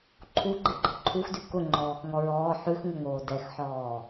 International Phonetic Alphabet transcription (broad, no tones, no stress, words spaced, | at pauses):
ǃʰu ɡ͡ǃeɡ͡ǃɤǃʰuxdʉ kʊŋ͡ǃɔːx ŋɔɹɔː ħʉxŋʊŋoː dɛxħɔː